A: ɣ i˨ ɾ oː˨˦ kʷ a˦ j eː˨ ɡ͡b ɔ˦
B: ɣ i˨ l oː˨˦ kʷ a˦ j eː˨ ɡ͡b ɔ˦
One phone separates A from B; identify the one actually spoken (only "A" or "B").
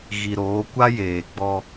A